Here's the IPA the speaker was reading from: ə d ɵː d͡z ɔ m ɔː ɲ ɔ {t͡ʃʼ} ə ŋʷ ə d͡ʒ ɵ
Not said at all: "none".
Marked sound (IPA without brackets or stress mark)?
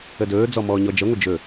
d͡ʒ